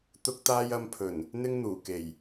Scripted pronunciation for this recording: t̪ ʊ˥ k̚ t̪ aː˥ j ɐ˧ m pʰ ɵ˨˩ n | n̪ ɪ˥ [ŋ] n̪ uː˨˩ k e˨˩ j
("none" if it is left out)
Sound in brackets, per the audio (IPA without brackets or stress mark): ŋ